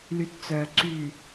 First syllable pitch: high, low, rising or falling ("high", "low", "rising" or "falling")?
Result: low